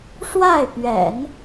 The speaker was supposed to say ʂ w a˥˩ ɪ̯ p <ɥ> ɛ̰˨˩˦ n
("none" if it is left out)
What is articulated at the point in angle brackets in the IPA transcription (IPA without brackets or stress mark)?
ɥ